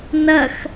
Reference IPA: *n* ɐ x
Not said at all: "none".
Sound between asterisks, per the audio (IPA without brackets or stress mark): n